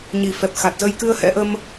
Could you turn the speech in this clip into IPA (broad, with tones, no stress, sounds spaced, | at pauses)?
ɲ i˨˩ f ɛ˨˩ p̚ x a˨˩ t̚ z ə˧ j k ɨ˧ ə̯ h ɛ̰˧˥ ʔ ə˧ m